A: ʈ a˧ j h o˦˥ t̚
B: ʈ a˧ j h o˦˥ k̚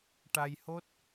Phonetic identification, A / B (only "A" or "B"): A